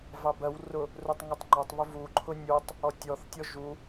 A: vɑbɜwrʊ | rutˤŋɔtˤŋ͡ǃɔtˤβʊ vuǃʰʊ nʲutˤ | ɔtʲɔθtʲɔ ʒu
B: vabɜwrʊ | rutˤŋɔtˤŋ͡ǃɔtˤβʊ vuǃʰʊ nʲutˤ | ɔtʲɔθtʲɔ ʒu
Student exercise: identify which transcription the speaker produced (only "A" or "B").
A